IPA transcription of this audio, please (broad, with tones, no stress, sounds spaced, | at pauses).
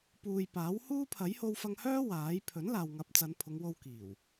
p uː˨ j p aː˨˥ w h uː˥ pʰ ɐ˨˥ j h o˧ w f ɐ˧ ŋ h œː˥ w aː˨˥ j pʰ ɵ˨˥ n l aː˨ w ŋ ɐ˨˥ p̚ t͡s ɐ˨˧ n pʰ ʊ˨˧ ŋ w o˧ w k iː˨˩ w